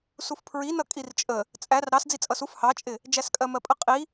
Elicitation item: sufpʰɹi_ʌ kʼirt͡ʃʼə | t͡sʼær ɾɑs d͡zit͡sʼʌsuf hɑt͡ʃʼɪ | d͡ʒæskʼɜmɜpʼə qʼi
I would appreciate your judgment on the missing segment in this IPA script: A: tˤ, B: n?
B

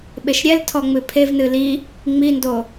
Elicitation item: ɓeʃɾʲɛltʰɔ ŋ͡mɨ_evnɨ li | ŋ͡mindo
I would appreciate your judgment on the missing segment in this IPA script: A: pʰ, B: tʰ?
A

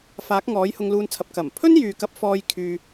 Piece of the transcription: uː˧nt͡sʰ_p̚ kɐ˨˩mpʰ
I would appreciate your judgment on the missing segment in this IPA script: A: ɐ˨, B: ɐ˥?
A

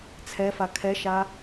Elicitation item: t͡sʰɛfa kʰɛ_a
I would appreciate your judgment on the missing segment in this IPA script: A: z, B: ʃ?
B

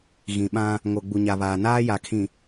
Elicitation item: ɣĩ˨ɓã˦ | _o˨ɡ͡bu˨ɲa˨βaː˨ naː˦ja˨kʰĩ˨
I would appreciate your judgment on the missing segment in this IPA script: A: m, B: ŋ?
B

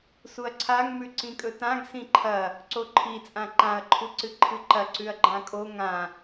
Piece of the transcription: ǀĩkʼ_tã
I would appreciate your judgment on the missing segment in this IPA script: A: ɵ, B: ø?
A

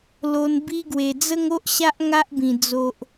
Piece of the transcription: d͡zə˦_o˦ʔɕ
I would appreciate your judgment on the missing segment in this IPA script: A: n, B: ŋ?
B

